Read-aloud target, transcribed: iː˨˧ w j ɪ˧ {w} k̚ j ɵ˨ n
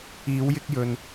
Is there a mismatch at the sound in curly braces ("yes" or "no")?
yes